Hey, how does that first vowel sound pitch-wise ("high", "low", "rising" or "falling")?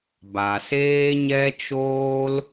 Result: low